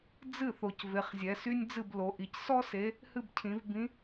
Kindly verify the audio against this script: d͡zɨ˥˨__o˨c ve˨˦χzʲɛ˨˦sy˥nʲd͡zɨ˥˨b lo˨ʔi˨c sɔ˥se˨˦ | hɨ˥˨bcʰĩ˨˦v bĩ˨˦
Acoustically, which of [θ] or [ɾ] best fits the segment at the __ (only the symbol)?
θ